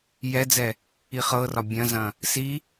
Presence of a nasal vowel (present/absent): present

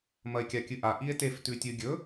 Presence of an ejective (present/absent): absent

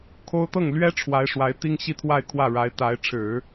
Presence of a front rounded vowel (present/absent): absent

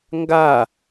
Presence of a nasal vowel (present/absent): absent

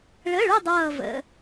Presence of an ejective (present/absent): absent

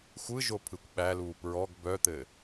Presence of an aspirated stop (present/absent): present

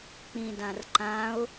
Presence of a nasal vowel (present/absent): present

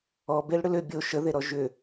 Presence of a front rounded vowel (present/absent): present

